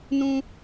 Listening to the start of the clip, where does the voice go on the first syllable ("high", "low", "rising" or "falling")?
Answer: high